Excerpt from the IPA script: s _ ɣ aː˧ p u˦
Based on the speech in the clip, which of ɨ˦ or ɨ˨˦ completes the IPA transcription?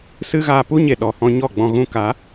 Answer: ɨ˦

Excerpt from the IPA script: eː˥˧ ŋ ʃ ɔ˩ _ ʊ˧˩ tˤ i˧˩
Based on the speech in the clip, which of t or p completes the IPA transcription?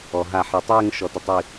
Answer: t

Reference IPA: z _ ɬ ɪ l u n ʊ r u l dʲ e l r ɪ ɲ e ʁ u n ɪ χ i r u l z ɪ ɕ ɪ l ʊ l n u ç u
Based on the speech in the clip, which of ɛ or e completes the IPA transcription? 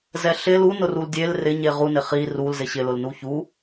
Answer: ɛ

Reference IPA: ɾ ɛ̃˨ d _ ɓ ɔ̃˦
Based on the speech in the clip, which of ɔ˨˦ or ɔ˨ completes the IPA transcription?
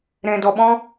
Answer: ɔ˨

